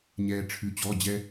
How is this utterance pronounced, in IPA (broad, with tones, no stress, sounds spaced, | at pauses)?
ɲ ɛː˩ ʈ͡ʂʰ ʉ˩ t͡ɕ ɔ˩˧˩ d͡ʑ ɛ˧